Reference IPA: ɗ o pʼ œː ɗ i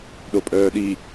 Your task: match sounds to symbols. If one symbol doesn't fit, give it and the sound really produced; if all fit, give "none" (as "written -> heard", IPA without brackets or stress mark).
none